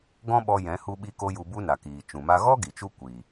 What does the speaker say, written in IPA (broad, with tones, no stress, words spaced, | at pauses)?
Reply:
ɡɔ̃˦ɓɔ˧ jɛ̃˨˦ hu˧ɓi˧ko˧ ju˧bu˦na˨kiː˨ t͡ʃũ˨ma˧ ɣɔ˦ ɡi˨t͡ʃu˦ kʷi˨